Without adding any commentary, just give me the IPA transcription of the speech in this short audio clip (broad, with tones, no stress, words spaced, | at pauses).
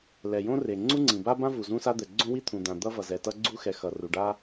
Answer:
lɛ˩jõ˥re˩ ŋ͡ǀu˥ŋ͡ǀĩ˩ba˥bã˥ vu˩zũ˥sa˥d̪ɛ˩ ɡ͡ǀõ˥wi˥t̪ʰũ˩d̪ã˩ d̪ʌ˥vʌ˩zɛ˩tʌ˥ ɡ͡ǀu˥xɛ˩ xʌ˩ ru˩ɖa˥